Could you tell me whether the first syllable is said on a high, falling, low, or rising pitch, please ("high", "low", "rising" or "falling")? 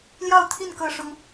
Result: falling